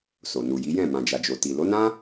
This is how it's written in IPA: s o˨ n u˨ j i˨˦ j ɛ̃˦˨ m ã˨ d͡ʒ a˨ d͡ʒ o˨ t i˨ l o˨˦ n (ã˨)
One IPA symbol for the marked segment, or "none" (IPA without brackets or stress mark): ã˦